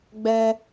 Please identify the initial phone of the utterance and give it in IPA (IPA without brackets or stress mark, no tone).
ɡ͡b